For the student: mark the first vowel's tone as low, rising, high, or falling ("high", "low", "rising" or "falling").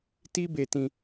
high